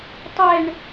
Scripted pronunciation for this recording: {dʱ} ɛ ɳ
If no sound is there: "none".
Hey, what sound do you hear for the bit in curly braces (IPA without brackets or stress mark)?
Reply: tˤ